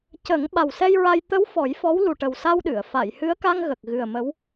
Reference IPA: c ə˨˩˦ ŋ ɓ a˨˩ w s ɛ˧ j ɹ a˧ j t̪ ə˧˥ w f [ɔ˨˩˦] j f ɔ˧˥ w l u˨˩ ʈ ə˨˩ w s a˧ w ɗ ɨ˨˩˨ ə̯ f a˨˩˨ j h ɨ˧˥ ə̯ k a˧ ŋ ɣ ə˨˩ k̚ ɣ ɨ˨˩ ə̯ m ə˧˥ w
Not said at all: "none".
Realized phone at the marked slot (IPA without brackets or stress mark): ɔ˨˩˦